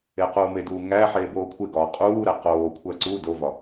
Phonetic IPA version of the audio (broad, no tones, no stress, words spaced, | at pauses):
equːmeduː ŋæħeː boːkʷʰeɡɒː qʼuːɾæ qoːkʷʰæ ǀu dovɒ